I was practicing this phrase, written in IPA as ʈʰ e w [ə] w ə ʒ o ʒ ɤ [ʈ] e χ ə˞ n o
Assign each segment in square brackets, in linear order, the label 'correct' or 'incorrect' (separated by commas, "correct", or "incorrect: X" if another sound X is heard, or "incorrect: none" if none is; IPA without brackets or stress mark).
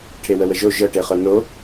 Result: correct, correct